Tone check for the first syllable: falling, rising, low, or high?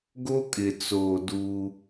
high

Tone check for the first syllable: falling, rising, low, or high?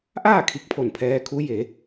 falling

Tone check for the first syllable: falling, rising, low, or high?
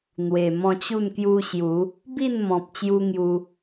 low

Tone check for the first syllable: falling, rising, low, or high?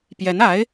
rising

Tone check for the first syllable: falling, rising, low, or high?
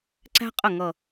high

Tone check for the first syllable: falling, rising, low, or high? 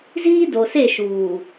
high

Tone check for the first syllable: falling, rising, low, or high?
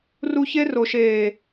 high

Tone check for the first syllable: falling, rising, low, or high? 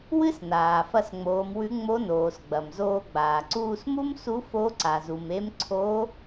high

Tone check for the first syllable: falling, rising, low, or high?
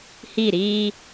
falling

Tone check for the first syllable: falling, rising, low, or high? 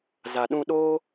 low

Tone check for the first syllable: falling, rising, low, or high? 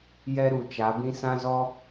high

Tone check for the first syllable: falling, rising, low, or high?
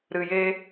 low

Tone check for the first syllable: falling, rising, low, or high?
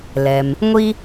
low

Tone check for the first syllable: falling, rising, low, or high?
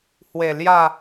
low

